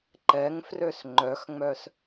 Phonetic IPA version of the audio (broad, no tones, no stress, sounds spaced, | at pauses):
ǃ ɛ ŋ f r ø s ŋ͡ǃ œ x ŋ͡m œ s